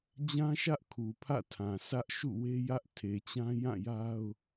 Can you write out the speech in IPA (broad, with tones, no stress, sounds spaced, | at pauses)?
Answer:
d͡ʑ ã˦ ʃ ä˦ ʔ kʰ u˨ pʰ ä̰˦˨ tʰ ã˨ sʰ ä˦ ʔ ʃ ṵ˦˨ w e˦ j ä˦ ʔ tʰ e˨ t͡ɕ ã˦ j ã˦˨ j a˦ ʊ̯